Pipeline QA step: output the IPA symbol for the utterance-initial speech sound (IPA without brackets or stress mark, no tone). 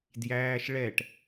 d